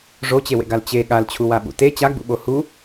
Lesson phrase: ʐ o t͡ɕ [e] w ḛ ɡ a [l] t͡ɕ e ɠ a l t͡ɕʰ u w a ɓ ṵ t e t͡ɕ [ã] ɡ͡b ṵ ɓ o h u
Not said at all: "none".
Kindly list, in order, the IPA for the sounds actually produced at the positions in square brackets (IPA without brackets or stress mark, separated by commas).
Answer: e, l, a